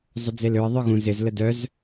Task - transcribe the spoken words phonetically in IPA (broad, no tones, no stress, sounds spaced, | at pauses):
zˤ ʊ d͡z e l ø ə̯ ðˤ œ ɣ ũ z ɪ z l ə d œ z